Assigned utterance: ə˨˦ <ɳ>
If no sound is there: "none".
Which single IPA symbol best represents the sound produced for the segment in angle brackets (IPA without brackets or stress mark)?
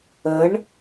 ɳ